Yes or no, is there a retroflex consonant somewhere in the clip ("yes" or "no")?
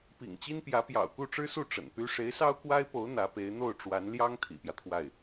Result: yes